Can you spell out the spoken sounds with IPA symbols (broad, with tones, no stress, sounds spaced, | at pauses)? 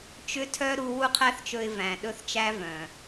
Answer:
t͡ʃ ʏ˦ tʰ œ˦ ɾ u˦ w u˦ qʰ æ˦ θ t͡ʃ ɵ˧ ɪ̯ v æ̃˨ ɗ ɵ˦ θ t͡ʃ æ˦ v œ̃˨